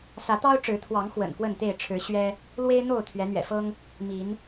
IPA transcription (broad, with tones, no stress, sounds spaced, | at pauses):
s ä˨˦ t̪ ɑ˦ ʊ̯ ʈ͡ʂ ɻ̩˨˦ t̪ʰ w ɑ˨˦ ŋ x w ə̰˨˩ n k w ə˥˨ n t̪ e˥˨ ɪ̯ ʈ͡ʂʰ ɻ̩˨˦ ɕ ɥ ɛ˦ | l w e˦ ɪ̯ n̪ o˥˨ ʊ̯ t̪ʰ ɥ ɛ˨˦ n̪ ɥ ɛ̰˨˩ f ɤ˦ ŋ | m i˨˦ n